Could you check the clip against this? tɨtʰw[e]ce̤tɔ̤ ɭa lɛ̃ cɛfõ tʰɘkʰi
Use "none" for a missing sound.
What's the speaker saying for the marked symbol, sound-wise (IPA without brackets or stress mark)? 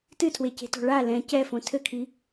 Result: e